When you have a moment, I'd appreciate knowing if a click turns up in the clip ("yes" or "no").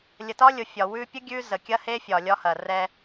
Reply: no